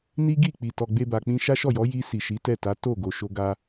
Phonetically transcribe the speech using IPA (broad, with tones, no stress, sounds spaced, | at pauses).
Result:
n i˦ ɡ i˦˨ k͡p i˨ t ɔ˨ ɡ͡b e˧ b a˨ k͡p ĩ˧ ʃ a˦ ʃ ɔ˦˨ j ɔ˨˦ j i˧ s i˨ ʃ i˨˦ t ɛ˦˨ t a˨˦ t o˦˨ ɡ o˨ ʃ o˧ ɡ a˧